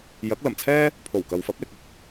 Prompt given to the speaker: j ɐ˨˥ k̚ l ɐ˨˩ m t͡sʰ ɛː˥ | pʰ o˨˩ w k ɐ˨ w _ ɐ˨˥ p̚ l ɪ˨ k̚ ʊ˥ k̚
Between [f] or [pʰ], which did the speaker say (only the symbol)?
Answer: f